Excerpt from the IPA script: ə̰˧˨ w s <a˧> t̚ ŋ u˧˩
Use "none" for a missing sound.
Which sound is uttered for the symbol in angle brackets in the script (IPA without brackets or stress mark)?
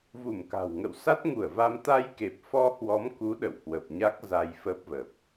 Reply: a˦˥